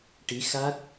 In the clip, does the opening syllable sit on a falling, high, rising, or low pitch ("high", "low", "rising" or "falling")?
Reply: rising